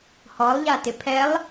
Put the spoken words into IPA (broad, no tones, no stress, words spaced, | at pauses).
hɔlˠʎatɪ pʰɛlˠ